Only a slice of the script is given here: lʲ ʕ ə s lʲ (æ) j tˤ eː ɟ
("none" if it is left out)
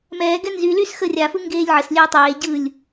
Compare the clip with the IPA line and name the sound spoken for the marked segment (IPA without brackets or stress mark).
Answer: ɛ